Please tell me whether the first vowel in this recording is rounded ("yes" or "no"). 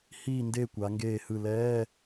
no